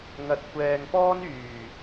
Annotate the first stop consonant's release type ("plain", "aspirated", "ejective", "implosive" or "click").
plain